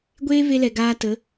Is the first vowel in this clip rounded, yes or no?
no